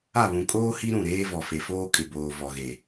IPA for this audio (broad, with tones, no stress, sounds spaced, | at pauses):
a˦˨ β ũ˨ kʼ oː˦ h i˦ ɾ ũ˦˨ ɾ eː˦ v ɔ˨ f e˨ f oː˦ kʼ ɪ˨ b oː˨ v ɔ˨ ɣ e˨